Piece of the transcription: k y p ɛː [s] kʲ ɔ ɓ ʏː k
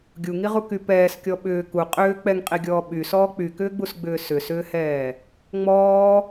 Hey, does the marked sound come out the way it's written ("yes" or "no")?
yes